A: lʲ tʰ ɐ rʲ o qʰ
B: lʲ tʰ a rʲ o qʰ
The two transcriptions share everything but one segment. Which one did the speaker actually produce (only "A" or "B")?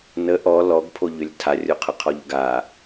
B